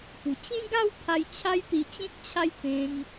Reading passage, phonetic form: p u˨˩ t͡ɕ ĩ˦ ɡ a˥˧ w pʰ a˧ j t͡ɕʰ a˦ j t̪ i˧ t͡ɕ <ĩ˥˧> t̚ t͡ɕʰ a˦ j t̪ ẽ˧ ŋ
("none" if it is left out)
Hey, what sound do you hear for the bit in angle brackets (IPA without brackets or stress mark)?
ĩ˦